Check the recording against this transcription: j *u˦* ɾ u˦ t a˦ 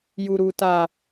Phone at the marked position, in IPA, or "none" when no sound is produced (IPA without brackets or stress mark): u˦